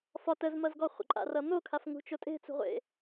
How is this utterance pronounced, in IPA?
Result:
f ɒ t ə z m ʌ z ɡ ɔ χʷ ə̰ ǃʼ a̰ r ʌ n̪ o kʰ a f ŋ ṳ t͡ʃ o tʼ e̤ t͡s ṳ ʁʷ ḛ

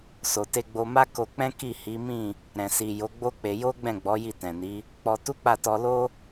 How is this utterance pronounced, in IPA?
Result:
s o˨ t e˧ ɡ͡b o˧ m a˦ k o˧ k͡p ɛ̃˦ k i˦˨ h i˨˦ m ĩ˦˨ | ɾ ɛ̃˨ s i˨ j o˨˦ ɡ͡b o˦ k͡p e˧ j o˦ ɡ͡b ɛ̃˦˨ ɡ͡b ɔ˨˦ j i˦˨ t ɛ̃˨ n i˨˦ | k͡p ɔ˧ t u˦ k͡p a˦˨ t ɔ˧ l o˦

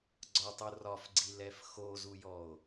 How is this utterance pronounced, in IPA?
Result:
ɡ͡ǀ ɒ tˤ u r ɒ f ɡ͡ǀ i l ɛ f x o z u j ɔ o̯

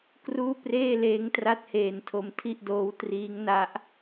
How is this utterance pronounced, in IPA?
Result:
k r uː˥˩ p r eː˥˩ l eː˦˥ ŋ t r a˦˥ t̚ h eː˧ n tʰ o˧ m tʰ i˥˩ ʔ d oː˦˥ w t r iː˦˥ ŋ n a˦˥ ʔ

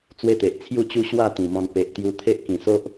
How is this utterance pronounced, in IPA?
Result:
t͡s w e˦ t̪ e˨ ʔ t͡sʰ j u˥˧ t͡ɕ u˦ ɕ w a˥˧ t̪ ĩ˨˩ m ɔ̃˧ n p e˨ ʔ t̪ j u˧ t̪ʰ e˦ ʔ k ĩ˨˩ s o˦ ʔ

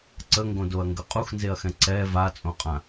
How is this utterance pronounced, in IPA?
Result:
ǀ ə ŋ ɡ õ d o ɐ̯ ŋ ɡ ə qʼ u x n z e ɐ̯ x ɛ̃ ǀ ɛ v a t͡sʼ õ qʼ ã

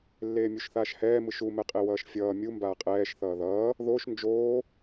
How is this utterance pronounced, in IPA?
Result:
lː eː mʲ u ʃ θ aː ʃ h ɛː m ɯ ʃ u m ɛ qʼ e w ʌː ʃ fʲ ʌː mʲ u m b aː qʼ ɛː ʃ θ ʌː ð ʌː | ð oː ʃ n d͡ʒ oː

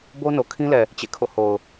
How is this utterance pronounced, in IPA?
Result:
b o˦ n o˨ kʰ ĩ˦ l ɛ˨ | t͡ɕ ḛ˦˨ kʰ o̰˦˨ h o˨ ʊ̯

